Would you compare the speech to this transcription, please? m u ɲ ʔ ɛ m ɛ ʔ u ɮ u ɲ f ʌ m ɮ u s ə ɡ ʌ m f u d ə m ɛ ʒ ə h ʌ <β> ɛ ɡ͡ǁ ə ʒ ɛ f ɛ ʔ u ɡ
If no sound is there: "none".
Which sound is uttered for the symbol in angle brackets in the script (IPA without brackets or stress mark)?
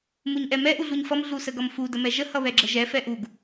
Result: β